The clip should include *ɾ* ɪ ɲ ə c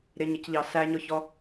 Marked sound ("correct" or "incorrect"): correct